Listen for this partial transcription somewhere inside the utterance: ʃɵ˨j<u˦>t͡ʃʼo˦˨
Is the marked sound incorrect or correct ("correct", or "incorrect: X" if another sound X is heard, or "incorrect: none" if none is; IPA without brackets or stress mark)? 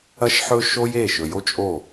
incorrect: o˦